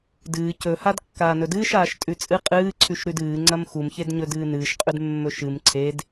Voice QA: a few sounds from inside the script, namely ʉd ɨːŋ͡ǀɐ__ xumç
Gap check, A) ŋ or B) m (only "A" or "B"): B